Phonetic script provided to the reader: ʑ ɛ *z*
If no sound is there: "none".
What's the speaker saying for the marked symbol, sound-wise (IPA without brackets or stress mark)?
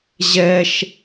ʃ